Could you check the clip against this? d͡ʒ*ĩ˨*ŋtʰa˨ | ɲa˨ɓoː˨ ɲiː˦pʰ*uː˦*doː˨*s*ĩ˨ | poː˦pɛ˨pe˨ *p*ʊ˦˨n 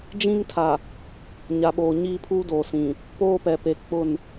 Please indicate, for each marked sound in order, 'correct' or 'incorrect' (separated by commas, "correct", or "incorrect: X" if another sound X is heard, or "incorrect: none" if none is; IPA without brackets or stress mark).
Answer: incorrect: ĩ˦, correct, correct, incorrect: k͡p